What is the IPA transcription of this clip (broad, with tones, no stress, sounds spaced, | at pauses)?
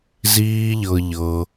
z iː˦ ʎ ɤ˧ ʎ ɤ˧